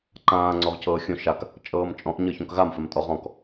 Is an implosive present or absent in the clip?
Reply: absent